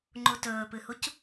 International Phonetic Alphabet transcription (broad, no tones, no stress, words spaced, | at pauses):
ŋ͡ǃutɵːpɨhuc